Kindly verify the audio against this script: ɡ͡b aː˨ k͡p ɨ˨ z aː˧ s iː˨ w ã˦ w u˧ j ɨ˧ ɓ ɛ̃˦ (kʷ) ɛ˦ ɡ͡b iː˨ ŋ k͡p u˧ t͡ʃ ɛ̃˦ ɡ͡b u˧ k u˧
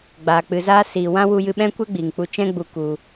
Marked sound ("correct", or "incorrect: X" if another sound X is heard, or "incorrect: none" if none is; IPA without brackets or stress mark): correct